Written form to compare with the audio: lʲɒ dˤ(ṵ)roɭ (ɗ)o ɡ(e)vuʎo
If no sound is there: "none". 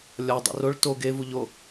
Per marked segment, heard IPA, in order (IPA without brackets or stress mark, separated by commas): ṵ, t, e